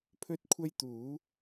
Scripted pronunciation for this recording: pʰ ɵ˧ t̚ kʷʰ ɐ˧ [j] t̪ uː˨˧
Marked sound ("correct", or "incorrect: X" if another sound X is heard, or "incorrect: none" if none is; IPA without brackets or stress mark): correct